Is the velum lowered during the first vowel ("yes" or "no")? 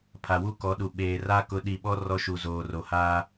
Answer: no